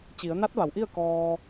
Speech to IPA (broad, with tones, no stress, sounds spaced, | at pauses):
t͡ɕ i˩˧ ə̯ n a˧˥ t̚ ʋ a˩˧ w ʔ i˥˨ ə̯ k ɔː˧